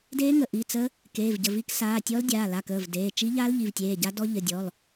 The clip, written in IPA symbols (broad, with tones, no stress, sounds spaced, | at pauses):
d eː˦˥ ŋ ə˩˧˩ ʔ i˩˧˩ t͡s ə˦˥ | k eː˩˧˩ v ɟ ə˩˧˩ v i˦˥ k s aː˩˧˩ tʲ ɔ˦˥ l dʲ aː˩˧˩ l a˩˧˩ k əː˩˧˩ v d eː˩˧˩ t͡ʃ i˦˥ ʎ a˦˥ l ʎ i˩˧˩ v tʲ eː˩˧˩ ɟ a˦˥ d ɔ˦˥ ʎ ə˩˧˩ dʲ ɔ˩˧˩ l